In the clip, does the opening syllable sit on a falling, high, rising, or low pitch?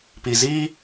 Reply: low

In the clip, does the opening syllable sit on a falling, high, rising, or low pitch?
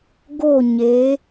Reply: falling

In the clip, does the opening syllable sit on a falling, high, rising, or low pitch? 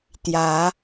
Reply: rising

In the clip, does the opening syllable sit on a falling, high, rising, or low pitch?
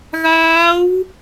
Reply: rising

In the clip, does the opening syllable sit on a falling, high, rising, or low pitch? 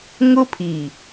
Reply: high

